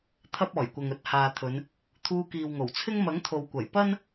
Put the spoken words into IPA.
t̪ʰɐ˥p̚ɔː˨˩jkʷɐ˨ŋɵ˨˥t̚ haː˨t̪ʰɵ˨˧n | t̪ʰuː˧kiː˨wŋo˨˩wt͡sʰɪ˥ŋ mɐ˨˥ŋt̪ʰo˨wkʷɐ˨˩jpɐ˥n

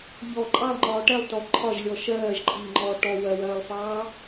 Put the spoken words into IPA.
ʎɔ ǃʼɑlˠŋ͡ǃɒː ʈɛlˠ tɔ ǃʰɒʒlʲɔ ʃɜːʒǃʼiːŋ͡ǃɔː ʈɔ wɜwɜːlˠfɑː

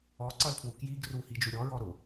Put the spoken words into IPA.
ɔǀʌlpʰwu kjiɡ ruhid͡ʒu ɾʲɔɹɔ ɾʊ

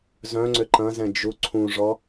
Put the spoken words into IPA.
zœ̃ŋ͡ǀʏ ǃɐ̃zɛ̃ d͡ʒuǀʰũʐɔ

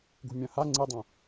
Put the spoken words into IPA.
ɡṳmʲɐ̃ha ŋ͡ǀidˤɐ̃

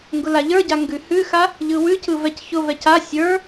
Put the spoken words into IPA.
ŋɡʊlaʎə˞ɟa ŋɡʉhʉxa | ʎɯwʉcɯ vɛcçʊvɛc a sʲə˞

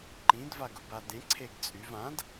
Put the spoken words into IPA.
ǃĩd vaɡʊbadẽ ǀʰeɡt͡sʼyv ãd

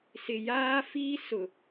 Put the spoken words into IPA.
sɪ˨jaː˦fiː˦sʊ˨

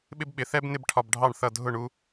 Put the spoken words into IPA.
ɓɪ˥bɓɪ˩˥ θɛ˥b nɪ˥bʈʰɒ˧bɖʱɑ˥˩ɳθʌ˥˩ dʱʊ˥˩ɳu˧

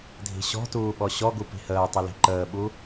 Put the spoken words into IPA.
dʱi̤ɕɔ̤tuː ɓɔɕɔɡu pi̤həːtˤə li̤ǃəːɓu

